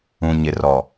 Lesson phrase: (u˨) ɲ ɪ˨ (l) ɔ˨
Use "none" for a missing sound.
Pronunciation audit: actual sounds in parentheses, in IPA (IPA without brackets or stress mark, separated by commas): ũ˨, r